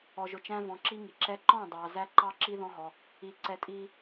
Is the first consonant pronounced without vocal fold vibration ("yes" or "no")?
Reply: no